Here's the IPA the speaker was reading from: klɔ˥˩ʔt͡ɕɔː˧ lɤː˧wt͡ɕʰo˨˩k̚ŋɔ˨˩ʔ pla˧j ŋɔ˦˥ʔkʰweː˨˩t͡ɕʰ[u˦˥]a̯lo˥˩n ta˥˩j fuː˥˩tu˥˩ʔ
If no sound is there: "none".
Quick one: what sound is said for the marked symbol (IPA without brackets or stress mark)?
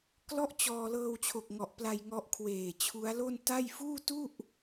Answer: u˦˥